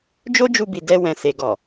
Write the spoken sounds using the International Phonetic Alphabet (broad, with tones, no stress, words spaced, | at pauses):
d͡ʒo˦d͡ʒu˧bi˨ dɛ˧ wɛ̃˨se˨ɡɔ˨